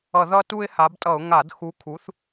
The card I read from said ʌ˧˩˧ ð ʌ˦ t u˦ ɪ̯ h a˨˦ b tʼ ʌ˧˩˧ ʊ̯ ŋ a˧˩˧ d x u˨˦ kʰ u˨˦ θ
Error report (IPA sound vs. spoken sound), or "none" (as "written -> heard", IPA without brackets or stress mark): none